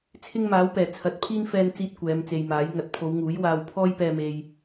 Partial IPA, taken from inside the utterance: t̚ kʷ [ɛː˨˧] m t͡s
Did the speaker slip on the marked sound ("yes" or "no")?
no